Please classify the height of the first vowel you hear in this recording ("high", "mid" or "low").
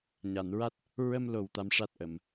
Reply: low